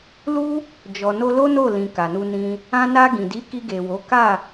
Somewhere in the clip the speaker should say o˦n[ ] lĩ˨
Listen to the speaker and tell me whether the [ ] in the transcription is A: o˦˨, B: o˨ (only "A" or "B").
A